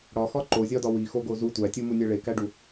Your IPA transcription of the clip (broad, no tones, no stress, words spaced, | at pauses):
ɽɒxɒ ǃozʲɒdɒ wixoɡo zu tʷætʲumunʲæ ɭekæɖu